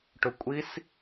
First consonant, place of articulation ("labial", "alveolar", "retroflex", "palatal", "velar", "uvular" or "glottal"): retroflex